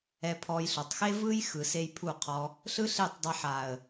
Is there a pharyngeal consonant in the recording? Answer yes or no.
yes